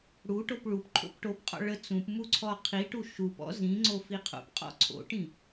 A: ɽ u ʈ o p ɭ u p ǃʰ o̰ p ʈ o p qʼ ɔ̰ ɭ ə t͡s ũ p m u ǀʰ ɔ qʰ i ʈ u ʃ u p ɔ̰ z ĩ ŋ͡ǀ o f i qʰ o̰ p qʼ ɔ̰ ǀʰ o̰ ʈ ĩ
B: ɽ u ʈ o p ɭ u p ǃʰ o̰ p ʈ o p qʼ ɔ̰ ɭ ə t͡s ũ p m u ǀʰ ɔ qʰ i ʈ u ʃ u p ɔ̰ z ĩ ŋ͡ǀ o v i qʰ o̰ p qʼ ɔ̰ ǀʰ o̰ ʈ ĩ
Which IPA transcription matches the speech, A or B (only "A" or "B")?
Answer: A